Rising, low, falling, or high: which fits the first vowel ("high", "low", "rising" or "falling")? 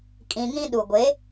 low